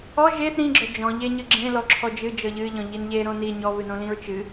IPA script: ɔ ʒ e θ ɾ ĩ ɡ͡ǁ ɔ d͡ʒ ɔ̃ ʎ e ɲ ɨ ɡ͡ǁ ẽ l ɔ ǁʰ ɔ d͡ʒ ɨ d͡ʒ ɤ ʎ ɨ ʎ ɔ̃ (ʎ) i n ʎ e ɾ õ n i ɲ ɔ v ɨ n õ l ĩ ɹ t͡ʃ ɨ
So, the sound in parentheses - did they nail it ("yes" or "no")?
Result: yes